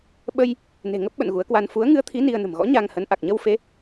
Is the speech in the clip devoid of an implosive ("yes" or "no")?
no